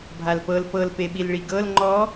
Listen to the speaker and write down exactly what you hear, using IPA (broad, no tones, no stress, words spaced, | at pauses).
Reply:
bʱalpɤl pɤl peɓilɭiɡɤl ŋ͡ǃɔ